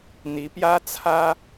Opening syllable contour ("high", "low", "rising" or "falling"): rising